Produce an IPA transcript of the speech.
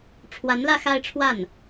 ʈ͡ʂʰwa˧˥nlä˥˧ xa˥˧ɪ̯ʈ͡ʂʰwa˥˩n

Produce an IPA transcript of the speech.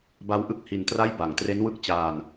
ba˦˥wʔɯ˥˩k̚ hi˧ntra˥˩j ba˨˩ŋtre˦˥nwɯ˦˥k̚t͡ɕaː˧n

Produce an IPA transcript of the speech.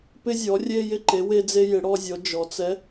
pɪ˧zʲɔ˩˧ rʲe˧jɪ˧ǃe˩˧ we˧d͡ze˧jɪ˩˧ ɽɔ˧ zʲɔ˩˧d͡ʒɔ˩˧t͡sɛ˧˥

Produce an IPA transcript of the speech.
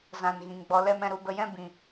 zã˨n ɣĩ˨ŋɡ͡bɔ˧lɛ˦m ɛ̃˧ɾu˧bə˧jɛ̃˦ bĩ˨

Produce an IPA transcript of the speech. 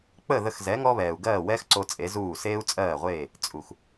k͡pə˥˩ ðə˧xzɛ˩˥ ŋɔ˥βɛː˩u̯ ɡɜː˥˩wɛː˥xǀo˧ t͡sʼe˩˥zuː˥˩ seː˥u̯t͡sʼɜː˥˩ʁʷeː˥˩ | t͡sʼu˩x

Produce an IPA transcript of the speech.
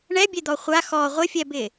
ɳɛbʲed̪ɔ χʷa xɔ ʁʷɪfʲɛbɪ

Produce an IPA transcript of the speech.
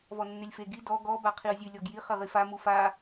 vɔnːelʲfe ɡi dɔ ɡɔ baqʰiə̯zʲɨ lʲɔɡji χɘʁifa mufa

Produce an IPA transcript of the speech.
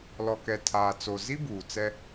lɔ˨kɛ˨tʰaː˨ t͡so˨zi˦ buː˨t͡sɛ˦

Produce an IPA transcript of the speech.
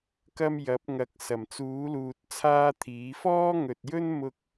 kɐ˥mjɐ˨˥p̚ŋɐ˨˥k̚ sɐ˨˩mt͡suː˨˥luː˨t̚ t͡sʰaː˥t̪ʰiː˨˥ fɔː˥ŋɵ˨t̚jɵ˥n mʊ˥k̚

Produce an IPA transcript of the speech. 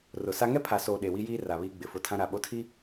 rʊ˨sa˦ ŋɛ˦pʰa˨soː˨ ɗe˨wi˦jiː˦ ra˨βiː˦ɡ͡bɪ˨fʊ˦ tʰã˦ ɾa˦˨ ɓo˦tʰi˦

